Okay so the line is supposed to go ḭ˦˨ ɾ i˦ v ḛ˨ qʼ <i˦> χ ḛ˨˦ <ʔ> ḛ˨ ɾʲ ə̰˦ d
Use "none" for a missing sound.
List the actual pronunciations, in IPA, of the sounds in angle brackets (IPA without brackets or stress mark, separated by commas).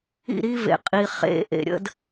i˨, ʔ